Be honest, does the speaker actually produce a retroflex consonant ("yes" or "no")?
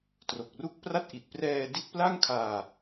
no